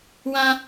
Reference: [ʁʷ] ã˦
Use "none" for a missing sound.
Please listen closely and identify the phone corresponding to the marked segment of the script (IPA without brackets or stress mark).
w